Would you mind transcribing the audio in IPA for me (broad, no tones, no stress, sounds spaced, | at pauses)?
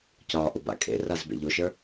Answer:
c ɒ ʔ ʊ b a̰ kʼ ḛ r a z b ḛ ʎ o ʃ ə˞